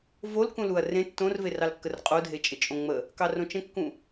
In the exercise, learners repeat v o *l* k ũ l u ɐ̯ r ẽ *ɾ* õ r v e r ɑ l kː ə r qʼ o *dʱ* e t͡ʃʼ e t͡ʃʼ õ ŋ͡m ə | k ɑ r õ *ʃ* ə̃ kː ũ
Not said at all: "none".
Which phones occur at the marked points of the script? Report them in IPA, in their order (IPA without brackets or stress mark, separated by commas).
l, tː, dʱ, t͡ʃ